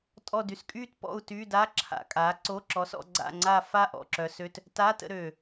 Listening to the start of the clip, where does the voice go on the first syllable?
falling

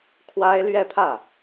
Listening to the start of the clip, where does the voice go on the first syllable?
high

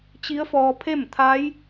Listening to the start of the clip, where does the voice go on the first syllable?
rising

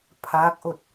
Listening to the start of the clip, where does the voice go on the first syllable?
rising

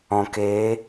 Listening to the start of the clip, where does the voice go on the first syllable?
low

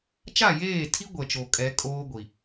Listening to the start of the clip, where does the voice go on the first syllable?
falling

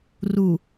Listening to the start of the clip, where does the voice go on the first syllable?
low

